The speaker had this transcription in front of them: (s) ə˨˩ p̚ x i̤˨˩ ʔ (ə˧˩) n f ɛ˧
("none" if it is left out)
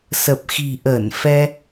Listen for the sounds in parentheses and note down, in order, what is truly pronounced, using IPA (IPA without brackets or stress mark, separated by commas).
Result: s, əː˧˩